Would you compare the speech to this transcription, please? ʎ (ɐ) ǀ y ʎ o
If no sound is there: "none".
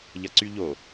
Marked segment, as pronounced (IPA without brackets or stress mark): ɐ